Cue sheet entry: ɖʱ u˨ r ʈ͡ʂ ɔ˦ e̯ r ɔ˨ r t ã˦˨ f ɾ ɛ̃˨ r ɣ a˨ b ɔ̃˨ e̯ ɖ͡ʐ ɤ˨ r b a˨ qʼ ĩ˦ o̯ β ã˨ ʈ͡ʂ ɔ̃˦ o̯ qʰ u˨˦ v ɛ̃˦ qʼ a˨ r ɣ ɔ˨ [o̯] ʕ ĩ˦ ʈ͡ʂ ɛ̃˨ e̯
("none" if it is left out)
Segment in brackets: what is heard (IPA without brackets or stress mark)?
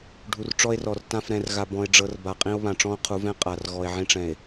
e̯